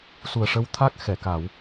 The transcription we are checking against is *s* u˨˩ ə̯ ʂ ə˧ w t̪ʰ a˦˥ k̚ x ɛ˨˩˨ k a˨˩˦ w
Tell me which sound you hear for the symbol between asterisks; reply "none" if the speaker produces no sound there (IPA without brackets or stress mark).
s